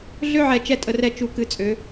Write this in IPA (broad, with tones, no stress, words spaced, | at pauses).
ɮø˦ʕɛ˨ t͡ʃɛ˦tʼə˨rɛ˦ t͡ʃu˦˨kɨ˦t͡sʼø˨˦